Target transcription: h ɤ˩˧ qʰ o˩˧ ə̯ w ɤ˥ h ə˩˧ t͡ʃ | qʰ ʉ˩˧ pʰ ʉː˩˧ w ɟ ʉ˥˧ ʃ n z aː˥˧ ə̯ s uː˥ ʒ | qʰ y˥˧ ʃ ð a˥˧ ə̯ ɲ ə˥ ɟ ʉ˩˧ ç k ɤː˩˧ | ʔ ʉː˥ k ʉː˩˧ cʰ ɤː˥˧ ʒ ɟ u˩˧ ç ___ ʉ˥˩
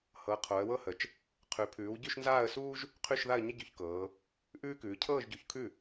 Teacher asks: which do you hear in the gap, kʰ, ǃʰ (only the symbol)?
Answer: kʰ